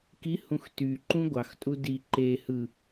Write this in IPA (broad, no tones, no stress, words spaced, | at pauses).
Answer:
kihũx tyǃũ ɡʷɑxtʼu di ǃe hɯ